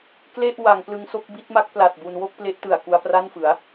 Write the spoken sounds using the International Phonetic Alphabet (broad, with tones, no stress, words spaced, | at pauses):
kle˥˩ʔ wa˩˦ŋ plɯ˧ŋso˥˩k̚bi˦˥t̚ma˦˥k̚ pla˨˩t̚bu˧nwo˥˩k̚ple˦˥ʔ tɯ˨˩a̯ku˧a̯pra˥˩nfɯ˩˦a̯